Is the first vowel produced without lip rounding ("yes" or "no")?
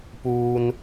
no